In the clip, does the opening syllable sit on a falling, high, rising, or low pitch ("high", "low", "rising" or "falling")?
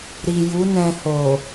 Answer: low